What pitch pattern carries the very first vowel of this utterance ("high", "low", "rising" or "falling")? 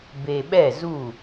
low